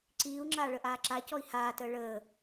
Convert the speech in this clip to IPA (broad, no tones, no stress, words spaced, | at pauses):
ǀiːu̯ŋ͡ǁaː ɭəʔaːǁacɔi̯ haːtəː ɭəː